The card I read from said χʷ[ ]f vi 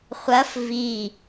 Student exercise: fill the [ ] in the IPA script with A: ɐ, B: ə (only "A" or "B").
A